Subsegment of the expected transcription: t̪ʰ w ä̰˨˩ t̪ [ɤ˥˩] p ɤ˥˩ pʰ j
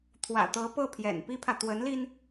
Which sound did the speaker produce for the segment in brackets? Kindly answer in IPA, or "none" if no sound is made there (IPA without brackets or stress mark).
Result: ɤ˧˥